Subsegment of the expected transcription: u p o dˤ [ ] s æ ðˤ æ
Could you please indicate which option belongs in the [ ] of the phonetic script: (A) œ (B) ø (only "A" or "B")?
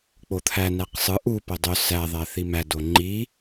B